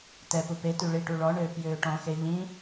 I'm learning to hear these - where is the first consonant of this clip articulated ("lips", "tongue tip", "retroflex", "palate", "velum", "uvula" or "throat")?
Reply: tongue tip